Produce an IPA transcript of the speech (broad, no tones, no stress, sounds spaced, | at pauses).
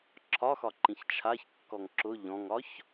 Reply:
ǁʰ ɒ x ɒ ǃ ĩ ç t͡ʃʰ a ç kː ɔ ŋ ǁ ʊ ʎ ɔ̃ ŋ ɒ ç